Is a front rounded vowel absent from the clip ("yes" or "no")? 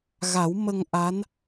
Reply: yes